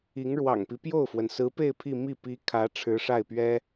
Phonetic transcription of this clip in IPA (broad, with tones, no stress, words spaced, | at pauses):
i˧˥ŋɻwɑ̰˨˩ŋpi˦ pjo˥˩ʊ̯fwə˩nsɹ̩˧˥pe˥˧ɪ̯ pʰi˥˧ mi˥˩ pi˧˥ kʰä˧˥ ʈ͡ʂʰɻ̩˧˥ʂa˥˩ɪ̯pɥɛ˥